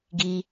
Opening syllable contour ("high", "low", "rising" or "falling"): high